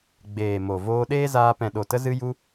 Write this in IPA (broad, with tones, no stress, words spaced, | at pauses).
ɡ͡beː˨mo˨ voː˧ɗeː˦zaː˧ pɛ̃˨ɗo˨tə˧ zɨ˧ju˧